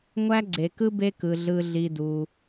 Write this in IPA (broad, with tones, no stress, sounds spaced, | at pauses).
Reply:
ŋʷ æ˦ ɡ͡ǀ e˧ k ɯ˦ b e˦ k ɯ˧ ɮ ɯ˧ ɮ i˧ d u˧